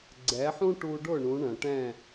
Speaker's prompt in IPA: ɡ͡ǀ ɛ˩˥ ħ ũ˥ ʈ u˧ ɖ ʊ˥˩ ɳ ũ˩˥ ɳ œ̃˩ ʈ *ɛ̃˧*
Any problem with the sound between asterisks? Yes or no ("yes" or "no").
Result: yes